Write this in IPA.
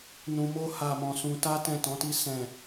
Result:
nũ˧mo˦ ha˦˨mɔ̃˧sũ˧ ta˦ tɛ̃˦˨tɔ̃˨˦ti˦ sɛ̃˦˨

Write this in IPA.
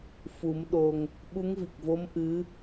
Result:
fu˨˩˦m ɗo˧ŋ | ɓu˧˥ŋvi˨˩k̚vo˧˥m ʔɨ˧˥

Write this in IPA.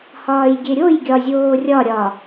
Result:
hɒːjɡʲeɾʲoj ɡʲɒzʲoːrʲɒ ɾʲɒ

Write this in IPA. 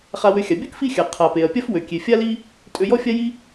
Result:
χa˧wø˧ xʲa˩bʲɵ˥k fi˥xʲa˩ qʰa˩pe˩ɐ̯pʲa˥f wø˩kʲe˩ fʲa˥li˥ | tʼø˧jɔ˥fʲa˥ji˥

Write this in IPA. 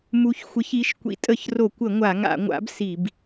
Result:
mu˨˥çxʷɪ˨˥ç i˨˥ʃ kʷḭ˨˥tʼə˧˩˧çro˧˩˧kʷə˧˩˧ ŋʷa˧˩˧ŋa̰˧˩˧ŋʷa̰˨˥b si˧˩˧b

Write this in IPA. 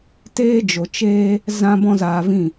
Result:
teː˦d͡ʒo˨t͡ʃeː˦ | zã˦bɔ̃˦zaː˧vĩ˦˨

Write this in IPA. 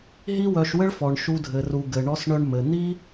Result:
ɦi˦wœ˧ʃwɘ˦ɭfɔ˨ɳ ʃu˦dʱɘ˧ru˧ ɡɘ˨ɳɔ˧sɳœ˧ɳ mɘ˨ n̪i˦

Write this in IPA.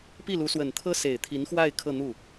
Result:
pi˥˩lu˧˥swə˨˩nt̪ʰɤ˥ se˨˩ɪ̯t̪ʰi˧˥nxwa˥˧ɪ̯ kʰɤ˥˧n̪u˥˩

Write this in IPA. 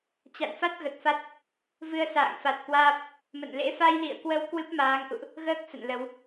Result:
t͡ɕa̰˧˨nfa˦˥t̚ ɣə˨˩t̚fa˦˥t̚ | vɨ˧ə̯sa̰ː˧˨ŋ fa˨˩t̚ kwaː˦˥p̚ | mə̰˧˨nlḛ˧˥ fa˧jlḭ˧˨ə̯kwə˧w kwɨ˦˥p̚maː˨˦ŋʔṵ˧˨ʔ | ɣəː˦˥k̚ sə̰˧˨nlə˨˦w

